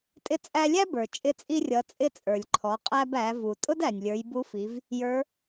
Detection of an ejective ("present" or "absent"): present